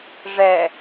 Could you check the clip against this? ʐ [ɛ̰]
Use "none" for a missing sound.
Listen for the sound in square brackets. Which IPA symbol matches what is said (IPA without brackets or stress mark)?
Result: ɛ